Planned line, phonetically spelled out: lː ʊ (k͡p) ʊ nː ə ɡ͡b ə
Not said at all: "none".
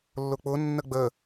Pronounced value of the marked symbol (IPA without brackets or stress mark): k͡p